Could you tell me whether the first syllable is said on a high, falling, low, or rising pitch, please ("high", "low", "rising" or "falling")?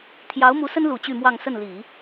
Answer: rising